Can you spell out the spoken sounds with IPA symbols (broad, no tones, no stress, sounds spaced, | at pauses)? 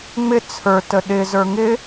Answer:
ŋ͡m ɪ t͡sʰ ə˞ t ə ɗ ɪ z ə˞ ŋ ɪ